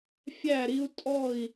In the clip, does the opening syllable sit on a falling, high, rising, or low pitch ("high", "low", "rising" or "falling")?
falling